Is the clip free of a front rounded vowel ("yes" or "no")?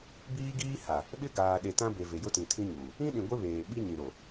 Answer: yes